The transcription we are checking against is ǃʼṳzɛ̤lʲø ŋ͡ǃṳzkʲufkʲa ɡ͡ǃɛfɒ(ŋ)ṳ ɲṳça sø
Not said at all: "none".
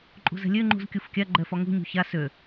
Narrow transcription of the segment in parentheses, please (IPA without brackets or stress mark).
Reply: ŋ